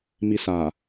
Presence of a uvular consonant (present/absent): absent